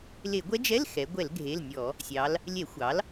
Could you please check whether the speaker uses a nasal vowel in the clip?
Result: no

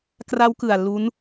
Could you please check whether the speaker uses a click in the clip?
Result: no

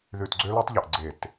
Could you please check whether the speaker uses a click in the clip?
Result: yes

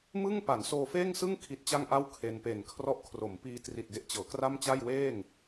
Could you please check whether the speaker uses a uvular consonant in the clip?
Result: no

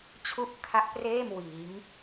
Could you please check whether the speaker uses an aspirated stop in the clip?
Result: yes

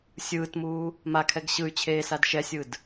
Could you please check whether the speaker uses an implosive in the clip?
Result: no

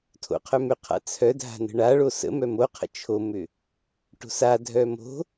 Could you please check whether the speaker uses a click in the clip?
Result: no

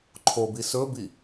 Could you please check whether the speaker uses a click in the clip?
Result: yes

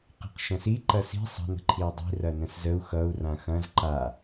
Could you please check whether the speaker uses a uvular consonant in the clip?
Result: yes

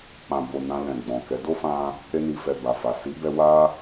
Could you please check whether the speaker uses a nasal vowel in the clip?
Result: yes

